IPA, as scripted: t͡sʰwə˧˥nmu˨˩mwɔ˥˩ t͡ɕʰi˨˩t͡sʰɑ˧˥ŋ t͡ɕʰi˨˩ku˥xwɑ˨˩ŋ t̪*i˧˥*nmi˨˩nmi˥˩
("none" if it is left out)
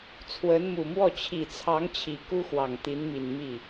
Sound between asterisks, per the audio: i˧˥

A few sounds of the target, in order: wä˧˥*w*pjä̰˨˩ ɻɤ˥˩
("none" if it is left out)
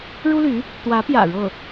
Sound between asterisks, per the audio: none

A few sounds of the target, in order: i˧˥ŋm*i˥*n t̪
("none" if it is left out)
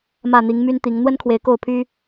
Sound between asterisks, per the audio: y˥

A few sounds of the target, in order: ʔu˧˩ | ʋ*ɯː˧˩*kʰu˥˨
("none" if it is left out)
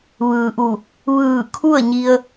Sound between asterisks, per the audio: ɯː˧˩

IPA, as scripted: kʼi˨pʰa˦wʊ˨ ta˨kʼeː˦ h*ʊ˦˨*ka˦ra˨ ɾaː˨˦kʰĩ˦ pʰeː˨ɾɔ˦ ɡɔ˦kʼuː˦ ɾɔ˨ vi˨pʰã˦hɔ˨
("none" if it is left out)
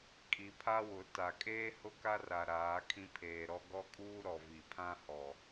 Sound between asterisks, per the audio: ʊ˦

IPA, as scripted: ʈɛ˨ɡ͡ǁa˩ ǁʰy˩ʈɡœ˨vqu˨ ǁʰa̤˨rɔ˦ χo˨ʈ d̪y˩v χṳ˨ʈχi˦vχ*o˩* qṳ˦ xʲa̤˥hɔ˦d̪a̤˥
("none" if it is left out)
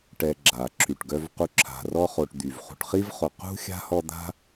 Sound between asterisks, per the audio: o˨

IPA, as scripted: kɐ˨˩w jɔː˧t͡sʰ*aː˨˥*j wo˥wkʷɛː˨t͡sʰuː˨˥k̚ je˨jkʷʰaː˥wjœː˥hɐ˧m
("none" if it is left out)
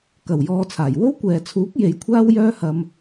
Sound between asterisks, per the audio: aː˨˩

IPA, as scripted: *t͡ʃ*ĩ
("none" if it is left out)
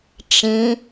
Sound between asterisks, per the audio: t͡ʃ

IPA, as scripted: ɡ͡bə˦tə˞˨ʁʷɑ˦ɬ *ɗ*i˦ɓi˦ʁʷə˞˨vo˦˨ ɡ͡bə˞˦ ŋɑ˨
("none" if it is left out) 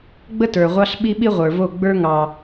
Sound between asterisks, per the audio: ɓ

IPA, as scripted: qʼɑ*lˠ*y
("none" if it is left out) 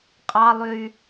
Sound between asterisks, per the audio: lˠ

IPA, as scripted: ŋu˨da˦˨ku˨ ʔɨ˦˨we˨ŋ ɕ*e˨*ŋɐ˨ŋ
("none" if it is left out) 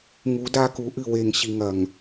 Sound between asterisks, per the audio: i˨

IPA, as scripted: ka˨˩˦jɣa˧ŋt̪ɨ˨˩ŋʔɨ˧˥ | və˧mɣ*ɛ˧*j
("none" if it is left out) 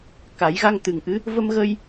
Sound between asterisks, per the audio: ə˧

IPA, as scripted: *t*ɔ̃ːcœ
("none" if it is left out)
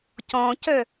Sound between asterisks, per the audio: c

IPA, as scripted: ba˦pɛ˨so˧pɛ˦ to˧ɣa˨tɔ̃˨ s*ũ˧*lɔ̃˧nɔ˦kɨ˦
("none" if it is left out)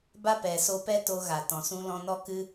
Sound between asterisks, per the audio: ũ˧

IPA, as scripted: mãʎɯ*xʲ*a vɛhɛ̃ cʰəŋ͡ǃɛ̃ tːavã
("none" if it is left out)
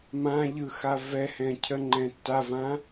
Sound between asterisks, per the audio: x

